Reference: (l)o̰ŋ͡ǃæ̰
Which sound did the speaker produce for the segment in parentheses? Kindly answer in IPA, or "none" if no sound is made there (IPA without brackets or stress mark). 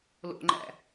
l